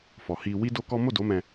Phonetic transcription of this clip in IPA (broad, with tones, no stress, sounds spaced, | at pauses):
f ɔ˨ h i˧ w i˦ d o˦ k ɔ˦ m o˦˨ d o˨˦ m ɛ̃˧